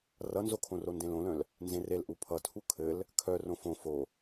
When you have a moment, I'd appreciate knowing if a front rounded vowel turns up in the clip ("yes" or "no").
yes